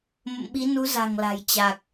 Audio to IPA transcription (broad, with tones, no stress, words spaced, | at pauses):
mə̰˧˨mɓi˨˦nu˨˦ za̤˨˩ŋla̤˨˩j t͡ɕa˨˩k̚